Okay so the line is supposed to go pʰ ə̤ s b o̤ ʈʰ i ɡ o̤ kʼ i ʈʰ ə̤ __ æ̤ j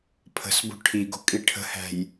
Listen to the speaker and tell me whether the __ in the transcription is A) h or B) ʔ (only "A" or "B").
A